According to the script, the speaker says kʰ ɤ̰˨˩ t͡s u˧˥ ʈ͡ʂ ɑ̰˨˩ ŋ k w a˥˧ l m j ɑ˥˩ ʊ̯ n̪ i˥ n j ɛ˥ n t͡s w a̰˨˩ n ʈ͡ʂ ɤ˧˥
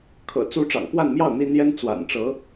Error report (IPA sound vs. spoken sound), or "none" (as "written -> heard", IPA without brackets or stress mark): l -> n